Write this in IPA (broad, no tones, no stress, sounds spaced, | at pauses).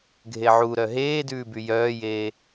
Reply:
ɡʱ e ʕ u ɾ œ ɦ eː d ʉː b y j œː j eː